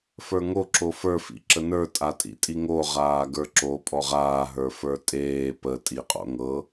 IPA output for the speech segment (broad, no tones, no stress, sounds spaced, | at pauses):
f ə˞ ŋ o ǁ o f ə˞ f ḭ ǁ ə n ə˞ tʼ a tʼ ḭ tʼ i ŋ o ʁ aː ɡ ə˞ ǁ o pʼ ɔ ʁ aː ɦ ə˞ f ə˞ tʼ eː p ə tʼ i qʼ o̰ ŋ ɤ